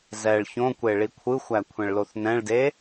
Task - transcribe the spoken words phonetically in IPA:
zɛɭ çõkʷe ɭikʷʰɯxʷæ kʷʰɛ̃ɭloθnɛ̃ɭde

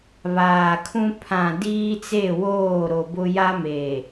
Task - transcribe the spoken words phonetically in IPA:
βaː˨kʰũ˦ pʰã˨ diː˦t͡se˦˨woː˦˨ ɾo˨bʊ˦ ja˦meː˨

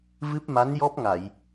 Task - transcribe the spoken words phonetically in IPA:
vɨ˦˥p̚ma˧˥njɔ˦˥p̚ ŋa˨˩˨j

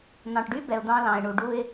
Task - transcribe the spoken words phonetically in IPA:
n̪ɑ̃˨ʈɖy˦bɛ˨ʊ̯ d̪ɑ̃˦lɑ̃˨ɪ̯ɳu˨ ɖu˦ɪ̯

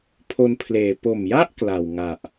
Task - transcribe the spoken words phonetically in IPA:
pʰo˧npʰleː˨˩ po˨˩mja˥˩ʔ kla˨˩wŋa˨˩ʔ

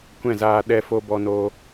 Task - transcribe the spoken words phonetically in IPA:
kʷɛ̃˦˨zaː˧ ɗɛ˧fo˧ bɔ˧noː˧

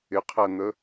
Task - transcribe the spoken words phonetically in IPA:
ɪqʰæn̪ə

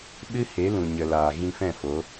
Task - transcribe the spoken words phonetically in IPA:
ɓɨ˦he˨˦lũ˨ɲə˨ laː˨ɣĩ˧fɛ̃˦˨ fo˨˦

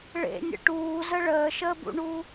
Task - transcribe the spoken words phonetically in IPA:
ɭḛnʲə̰ ʈuːzə ɭəːʃəːbṵɳu

